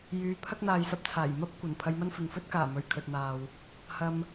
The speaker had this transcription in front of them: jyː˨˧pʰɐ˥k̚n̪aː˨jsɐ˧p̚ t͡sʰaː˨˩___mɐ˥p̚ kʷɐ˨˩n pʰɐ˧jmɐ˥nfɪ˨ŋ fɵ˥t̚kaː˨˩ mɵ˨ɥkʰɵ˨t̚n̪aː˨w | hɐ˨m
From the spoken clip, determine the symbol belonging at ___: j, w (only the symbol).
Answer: j